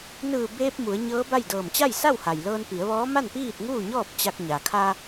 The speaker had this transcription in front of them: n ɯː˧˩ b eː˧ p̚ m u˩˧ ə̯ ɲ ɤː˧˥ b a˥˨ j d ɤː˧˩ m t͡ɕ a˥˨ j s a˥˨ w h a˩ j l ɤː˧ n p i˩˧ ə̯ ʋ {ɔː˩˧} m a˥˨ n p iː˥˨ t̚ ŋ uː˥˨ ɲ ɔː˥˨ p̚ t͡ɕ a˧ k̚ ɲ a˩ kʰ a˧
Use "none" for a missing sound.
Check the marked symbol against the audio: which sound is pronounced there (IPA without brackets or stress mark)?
ɔː˧˥